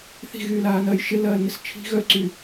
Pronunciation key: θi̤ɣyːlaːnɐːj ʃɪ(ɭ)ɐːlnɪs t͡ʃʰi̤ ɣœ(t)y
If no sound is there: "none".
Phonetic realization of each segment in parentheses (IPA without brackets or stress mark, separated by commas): l, ǀ